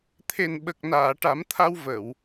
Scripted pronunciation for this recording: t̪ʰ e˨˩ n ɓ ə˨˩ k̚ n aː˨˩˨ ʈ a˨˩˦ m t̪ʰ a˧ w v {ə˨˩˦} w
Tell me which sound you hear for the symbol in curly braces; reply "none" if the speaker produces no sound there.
ə˨˩˨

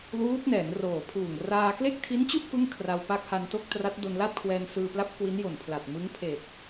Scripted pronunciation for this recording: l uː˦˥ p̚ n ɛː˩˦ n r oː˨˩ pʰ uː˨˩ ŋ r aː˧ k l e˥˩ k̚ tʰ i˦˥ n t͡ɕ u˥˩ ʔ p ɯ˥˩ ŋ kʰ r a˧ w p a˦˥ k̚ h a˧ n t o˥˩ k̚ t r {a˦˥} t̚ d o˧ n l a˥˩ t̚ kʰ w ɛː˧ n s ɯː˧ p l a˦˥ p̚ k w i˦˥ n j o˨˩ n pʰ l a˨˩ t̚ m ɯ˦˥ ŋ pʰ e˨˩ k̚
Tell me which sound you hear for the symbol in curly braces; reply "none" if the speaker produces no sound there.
a˦˥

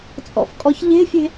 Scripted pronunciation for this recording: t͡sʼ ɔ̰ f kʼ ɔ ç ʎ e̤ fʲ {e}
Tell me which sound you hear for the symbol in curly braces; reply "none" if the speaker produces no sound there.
e̤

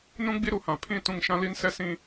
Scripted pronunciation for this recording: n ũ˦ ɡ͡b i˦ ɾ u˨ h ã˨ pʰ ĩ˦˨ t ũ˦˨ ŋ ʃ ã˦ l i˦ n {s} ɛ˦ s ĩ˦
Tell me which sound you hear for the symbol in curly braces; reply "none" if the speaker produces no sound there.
s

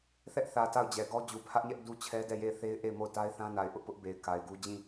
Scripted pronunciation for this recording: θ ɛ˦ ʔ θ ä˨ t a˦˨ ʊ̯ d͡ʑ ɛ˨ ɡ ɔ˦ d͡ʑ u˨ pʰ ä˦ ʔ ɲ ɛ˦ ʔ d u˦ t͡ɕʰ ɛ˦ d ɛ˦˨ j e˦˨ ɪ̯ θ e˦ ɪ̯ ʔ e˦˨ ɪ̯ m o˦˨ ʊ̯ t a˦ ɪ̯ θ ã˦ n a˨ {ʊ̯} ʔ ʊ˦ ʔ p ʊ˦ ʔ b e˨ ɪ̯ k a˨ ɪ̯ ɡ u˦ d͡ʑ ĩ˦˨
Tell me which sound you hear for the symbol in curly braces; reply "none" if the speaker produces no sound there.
ɪ̯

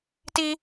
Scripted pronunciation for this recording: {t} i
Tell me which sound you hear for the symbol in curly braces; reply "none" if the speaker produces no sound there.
t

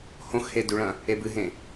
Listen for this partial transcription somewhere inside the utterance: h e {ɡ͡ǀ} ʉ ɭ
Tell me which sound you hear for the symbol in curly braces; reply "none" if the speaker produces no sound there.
d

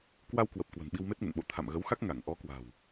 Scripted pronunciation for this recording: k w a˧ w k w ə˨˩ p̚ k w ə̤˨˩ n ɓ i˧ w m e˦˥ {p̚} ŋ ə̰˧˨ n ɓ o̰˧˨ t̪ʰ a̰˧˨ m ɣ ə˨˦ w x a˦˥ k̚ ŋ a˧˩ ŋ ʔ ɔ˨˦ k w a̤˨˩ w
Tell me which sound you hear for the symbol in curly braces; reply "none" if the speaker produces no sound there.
t̚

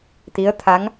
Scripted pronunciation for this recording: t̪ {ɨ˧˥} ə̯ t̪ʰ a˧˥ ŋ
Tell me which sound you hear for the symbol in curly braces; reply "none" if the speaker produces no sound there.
i˧˥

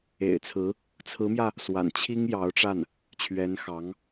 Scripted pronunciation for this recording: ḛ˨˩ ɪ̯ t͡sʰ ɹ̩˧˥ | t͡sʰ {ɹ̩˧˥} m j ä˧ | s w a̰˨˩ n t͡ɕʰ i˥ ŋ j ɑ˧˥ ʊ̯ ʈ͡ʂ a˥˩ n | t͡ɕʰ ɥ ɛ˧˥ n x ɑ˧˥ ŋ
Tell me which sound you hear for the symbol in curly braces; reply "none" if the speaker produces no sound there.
ɹ̩˧˥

